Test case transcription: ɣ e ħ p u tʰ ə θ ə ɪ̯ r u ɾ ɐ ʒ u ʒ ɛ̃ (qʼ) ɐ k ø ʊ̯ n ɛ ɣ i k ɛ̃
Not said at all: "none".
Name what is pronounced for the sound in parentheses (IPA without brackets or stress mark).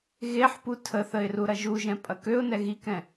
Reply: pʼ